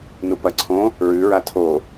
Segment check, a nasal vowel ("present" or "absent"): present